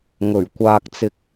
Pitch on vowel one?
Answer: low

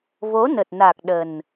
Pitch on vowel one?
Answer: rising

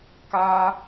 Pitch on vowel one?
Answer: high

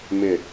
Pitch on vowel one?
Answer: low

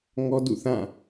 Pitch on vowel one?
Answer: high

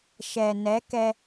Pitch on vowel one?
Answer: low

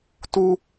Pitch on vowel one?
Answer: high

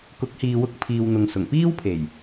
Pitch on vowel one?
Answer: rising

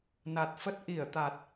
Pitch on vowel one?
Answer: low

